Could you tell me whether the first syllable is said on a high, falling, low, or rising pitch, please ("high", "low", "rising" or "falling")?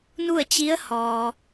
falling